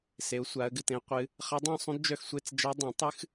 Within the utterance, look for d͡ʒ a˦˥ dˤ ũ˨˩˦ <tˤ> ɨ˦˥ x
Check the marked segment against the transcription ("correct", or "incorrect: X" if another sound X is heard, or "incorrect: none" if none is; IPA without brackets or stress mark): correct